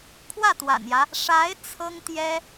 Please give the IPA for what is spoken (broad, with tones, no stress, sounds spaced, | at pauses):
kʰ w ä˥˩ t̪ w a̰˨˩ n j ä˦ | ʂ a˧˥ ɪ̯ t͡sʰ ɤ˥ ŋ t̪ j ɛ˥